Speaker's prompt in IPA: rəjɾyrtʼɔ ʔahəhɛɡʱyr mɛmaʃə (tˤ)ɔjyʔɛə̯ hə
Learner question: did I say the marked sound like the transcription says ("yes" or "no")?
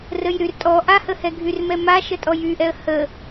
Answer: no